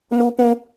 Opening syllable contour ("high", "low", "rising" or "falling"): high